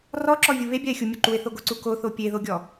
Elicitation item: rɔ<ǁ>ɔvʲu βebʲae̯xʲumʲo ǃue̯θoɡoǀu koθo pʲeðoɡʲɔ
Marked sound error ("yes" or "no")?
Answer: no